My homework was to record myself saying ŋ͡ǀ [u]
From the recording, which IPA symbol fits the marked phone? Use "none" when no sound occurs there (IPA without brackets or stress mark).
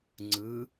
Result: ɯ